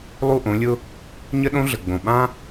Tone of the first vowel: falling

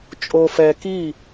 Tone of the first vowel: low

